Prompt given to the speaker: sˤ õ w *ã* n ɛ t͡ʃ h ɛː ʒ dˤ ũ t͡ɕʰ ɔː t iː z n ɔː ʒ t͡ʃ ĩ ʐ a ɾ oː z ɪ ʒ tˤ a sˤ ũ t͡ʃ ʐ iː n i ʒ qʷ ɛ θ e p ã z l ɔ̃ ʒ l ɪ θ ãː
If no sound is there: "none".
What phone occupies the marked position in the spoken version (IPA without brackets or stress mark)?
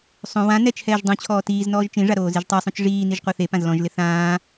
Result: ã